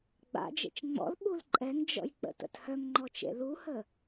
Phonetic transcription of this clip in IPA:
ɡ͡b a̰ d͡ʒ ḛ t͡ʃ ŋ͡m ɔ̰ l ɓ u l ǃʼ ɛ ŋ d͡ʒ ɔ̰ j k͡p ə̰ t ə̰ t h œ ŋ ŋ͡ǃ ɔ t͡ʃ ḛ l u h ə

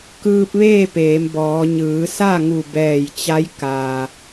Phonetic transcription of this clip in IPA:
k ɯː˧ p̚ ʋ eː˥˨ p eː˩˧ m b ɔː˩˧ ɲ ɯː˩˧ s a˥˨ ŋ u˧˩ b ɛː˧˩ j t͡ɕ a˧˥ j k a˩

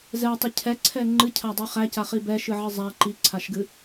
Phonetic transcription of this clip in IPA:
z ɛ tˤ ə cʰ ɛ ǀʰ ɛ ŋ͡ǃ ɨ cʰ a dˤ i χ æ c a χ i b ɛ ʃ ɨ ʕ ɨ zˤ æ ǃ i ǀʰ a ʃ ɡ ɨ

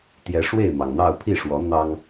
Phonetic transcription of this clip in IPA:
t̪ j ɛ˨˦ ʂ w e˥˨ ɪ̯ m ɑ˩ ŋ n̪ ɑ˥˨ ʊ̯ pʰ i˥˨ ʂ w ɔ˨˦ n̪ ɑ˦ ŋ

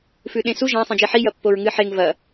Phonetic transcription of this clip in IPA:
f ʉ ɗ ẽ s u ʒ ã sˤ ẽ d͡ʒ i ħ i j ɐ pː o ɹ ŋ ɨ ħ e ŋ v ɐ

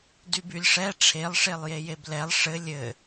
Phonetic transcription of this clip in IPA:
d y b y lʲ ʂ ɛ ʈ͡ʂʰ e lˠ ʂ e lˠ j e j e b l ɛ lˠ ʂ ɘ lʲ ɘ

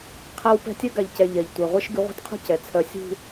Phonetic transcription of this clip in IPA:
qʰ a˦ w p ɛ̤˦ tʲ ɜ˦ ɡ a˨ ʎ c ɛ˨ ʎ ɛ˨ ʎ tʷ ɛ˨ ʁʷ ɜ˦ ʃ ɡ ʉ˨˦ ʁʷ e̤˦ t qʰ ṳ˦ c ɛ˨ t͡sʰ œ˦ sʲ ṳ˦

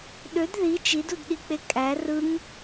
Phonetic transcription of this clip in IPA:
ɗ ø d ð i t͡ʃ i d u d ɗ i k͡p e kʼ æ r ɯ ŋ

